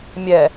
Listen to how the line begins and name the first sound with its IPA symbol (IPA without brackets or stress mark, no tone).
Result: mʲ